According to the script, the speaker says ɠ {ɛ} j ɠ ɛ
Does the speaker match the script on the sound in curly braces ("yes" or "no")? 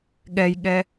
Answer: yes